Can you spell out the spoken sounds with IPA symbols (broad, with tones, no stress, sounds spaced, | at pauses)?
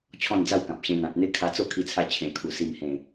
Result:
t͡ɕʰ ɔ̃˥˧ n d͡z a˥˧ w k ã˨ p̚ ɕ ẽ˧ n̪ ã˨ t̚ n̪ e˦ kʰ a˧ t͡s o˥˧ kʰ i˧ t͡sʰ a˧ t͡ɕʰ ẽ˨˩ kʰ u˨˩ s i˨˩ m h ẽ˨˩